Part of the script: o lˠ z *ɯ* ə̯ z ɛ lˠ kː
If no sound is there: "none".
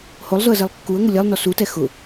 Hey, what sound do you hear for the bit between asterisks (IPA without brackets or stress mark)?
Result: ʊ